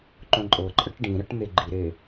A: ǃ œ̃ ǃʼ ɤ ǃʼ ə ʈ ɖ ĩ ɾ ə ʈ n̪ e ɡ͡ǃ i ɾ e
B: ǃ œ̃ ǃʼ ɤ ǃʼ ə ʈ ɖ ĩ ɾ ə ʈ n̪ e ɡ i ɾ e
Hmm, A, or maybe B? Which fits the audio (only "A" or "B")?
A